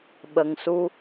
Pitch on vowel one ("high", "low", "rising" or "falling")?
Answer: low